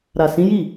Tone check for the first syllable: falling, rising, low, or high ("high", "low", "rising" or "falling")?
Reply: low